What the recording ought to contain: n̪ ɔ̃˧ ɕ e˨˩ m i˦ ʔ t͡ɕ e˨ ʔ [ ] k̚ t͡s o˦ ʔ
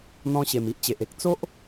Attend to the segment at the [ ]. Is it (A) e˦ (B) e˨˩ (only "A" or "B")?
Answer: A